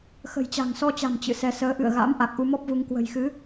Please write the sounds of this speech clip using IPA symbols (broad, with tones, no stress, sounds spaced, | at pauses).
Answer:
x ə̤˨˩ j t͡ɕ a̤˨˩ ŋ s ɔ˧ t͡ɕ a̤˨˩ m t͡ɕ ɨ̰˧˨ s ɛ˧ s əː˨˦ ʔ ɨ̰˧˨ ə̯ ɣ a̰˧˥ m ʔ a˨˩ k̚ ʔ u˧ m ɔ˦˥ p̚ v u˧ ŋ k w ə̤˨˩ j x ɨ˨˦